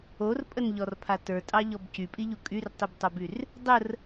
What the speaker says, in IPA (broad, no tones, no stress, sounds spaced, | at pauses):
o r pʼ ə n ʎ ɔ r pʰ a t ə˞ tʼ ɑ ʎ ɔ b c y pʼ i ʎ u kʼ y r tˤ i b tˤ o b y r | dˤ ə r